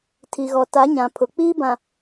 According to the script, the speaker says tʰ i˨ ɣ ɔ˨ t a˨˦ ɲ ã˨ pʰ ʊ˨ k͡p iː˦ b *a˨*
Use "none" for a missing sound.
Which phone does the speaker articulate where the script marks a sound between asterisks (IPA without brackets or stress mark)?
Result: ã˨